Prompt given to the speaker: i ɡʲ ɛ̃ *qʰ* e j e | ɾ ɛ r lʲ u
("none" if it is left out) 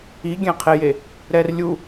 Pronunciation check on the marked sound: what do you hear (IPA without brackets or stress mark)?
qʰ